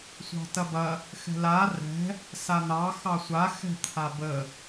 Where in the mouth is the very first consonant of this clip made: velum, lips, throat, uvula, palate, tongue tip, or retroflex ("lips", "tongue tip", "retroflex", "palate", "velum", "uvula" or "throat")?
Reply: tongue tip